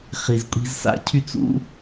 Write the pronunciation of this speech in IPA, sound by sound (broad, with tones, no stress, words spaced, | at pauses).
χi˨zkʷʼi̤˧z sa̰˦cʰy˧t͡sṵ˦